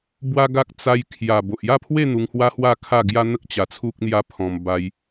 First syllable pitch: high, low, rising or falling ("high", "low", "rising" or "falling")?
high